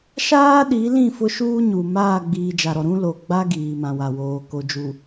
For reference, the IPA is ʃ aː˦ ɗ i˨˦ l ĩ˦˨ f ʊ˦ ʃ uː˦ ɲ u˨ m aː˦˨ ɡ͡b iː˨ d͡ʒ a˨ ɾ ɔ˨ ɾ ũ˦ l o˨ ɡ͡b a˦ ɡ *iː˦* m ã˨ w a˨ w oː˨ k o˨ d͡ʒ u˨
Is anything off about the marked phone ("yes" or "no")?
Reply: yes